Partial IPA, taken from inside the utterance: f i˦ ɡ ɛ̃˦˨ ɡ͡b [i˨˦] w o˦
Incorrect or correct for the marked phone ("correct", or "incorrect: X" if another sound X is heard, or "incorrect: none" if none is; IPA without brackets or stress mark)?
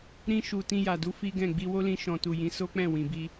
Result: incorrect: i˧